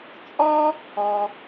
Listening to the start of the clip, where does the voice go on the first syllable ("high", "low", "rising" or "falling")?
high